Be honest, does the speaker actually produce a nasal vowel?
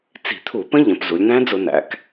yes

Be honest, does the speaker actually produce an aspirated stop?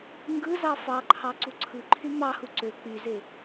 yes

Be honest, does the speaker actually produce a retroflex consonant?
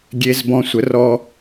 no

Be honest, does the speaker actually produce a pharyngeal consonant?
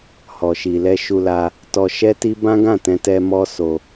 no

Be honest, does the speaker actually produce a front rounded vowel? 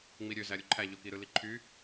yes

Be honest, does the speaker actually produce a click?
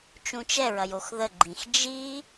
yes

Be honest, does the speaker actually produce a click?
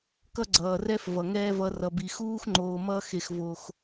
yes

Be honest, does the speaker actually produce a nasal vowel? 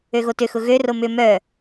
no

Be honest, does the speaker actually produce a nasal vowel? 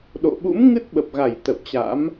no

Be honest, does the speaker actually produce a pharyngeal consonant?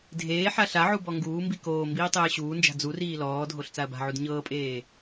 yes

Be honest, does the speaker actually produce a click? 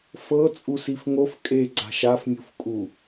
yes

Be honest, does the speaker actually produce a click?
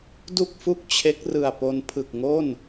no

